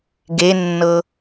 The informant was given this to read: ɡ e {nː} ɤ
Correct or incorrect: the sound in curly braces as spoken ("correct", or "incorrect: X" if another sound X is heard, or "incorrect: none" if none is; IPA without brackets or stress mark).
correct